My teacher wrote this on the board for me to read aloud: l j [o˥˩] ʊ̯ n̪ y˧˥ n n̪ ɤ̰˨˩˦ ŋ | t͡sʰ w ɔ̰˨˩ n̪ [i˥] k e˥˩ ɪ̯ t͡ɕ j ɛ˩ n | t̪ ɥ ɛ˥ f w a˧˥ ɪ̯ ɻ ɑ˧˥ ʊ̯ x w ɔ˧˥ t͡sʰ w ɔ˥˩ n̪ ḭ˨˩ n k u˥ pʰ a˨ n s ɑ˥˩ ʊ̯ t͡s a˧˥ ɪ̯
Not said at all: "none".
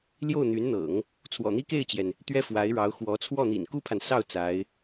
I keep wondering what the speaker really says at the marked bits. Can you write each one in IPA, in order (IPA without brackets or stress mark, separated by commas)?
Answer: o˥˩, i˥